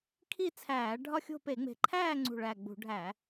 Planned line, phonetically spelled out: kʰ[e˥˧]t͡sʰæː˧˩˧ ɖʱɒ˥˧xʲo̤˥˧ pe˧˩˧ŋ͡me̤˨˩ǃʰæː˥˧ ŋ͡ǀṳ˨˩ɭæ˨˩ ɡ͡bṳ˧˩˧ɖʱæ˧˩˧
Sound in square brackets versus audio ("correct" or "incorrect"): incorrect